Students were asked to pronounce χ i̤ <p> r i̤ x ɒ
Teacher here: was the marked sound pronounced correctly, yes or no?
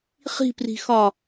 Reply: yes